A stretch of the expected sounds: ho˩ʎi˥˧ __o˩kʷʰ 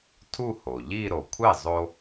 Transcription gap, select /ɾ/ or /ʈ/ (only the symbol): ɾ